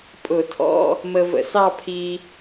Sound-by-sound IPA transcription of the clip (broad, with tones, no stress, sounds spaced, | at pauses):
pʼ ʊ˧˩˧ tʰ ɔ̰˧˥˧ | m ə˧ v ə̰˧˩˧ s ɑ˥˧ pʰ i˧